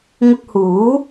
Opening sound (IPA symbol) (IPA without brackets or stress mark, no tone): ŋ